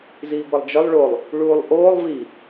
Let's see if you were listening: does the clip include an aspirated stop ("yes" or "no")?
no